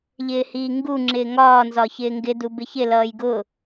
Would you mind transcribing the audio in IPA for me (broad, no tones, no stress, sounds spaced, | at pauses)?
ʎ ɪː h iː ŋ ɡ u ŋ͡ǁ ɪː ŋ ɒː n z ɒ ç ɪː ŋ ɡ ɪ d u b ɪ ç ɪ l ʌː j ɡ ʊː